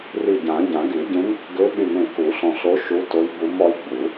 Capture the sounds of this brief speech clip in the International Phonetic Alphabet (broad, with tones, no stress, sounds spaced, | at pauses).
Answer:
r i˧˩ ɟ ã˨˩˦ ɟ ã˨˩˦ ɡ y˨˩˦ ɟ ẽ˧˥ m | ɡ ø˧˥ ɓ y˧˩ m ẽ˧˩ k u˨˩˦ ɬ ɔ̃˧˩ ɬ o˧˥ ʃ u˧˥ t o˧˥ j b u˧˥ m ɔ˧˥ j ɡ͡b u˨˩˦